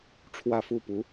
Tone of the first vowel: falling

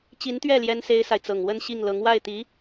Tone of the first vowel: rising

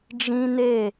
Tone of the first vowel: high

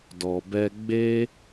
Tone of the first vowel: low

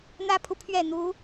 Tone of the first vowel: high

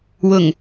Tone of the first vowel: low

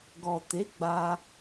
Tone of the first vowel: low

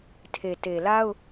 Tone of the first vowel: low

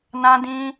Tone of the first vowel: high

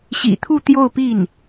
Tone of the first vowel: low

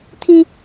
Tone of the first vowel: high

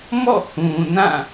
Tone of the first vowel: falling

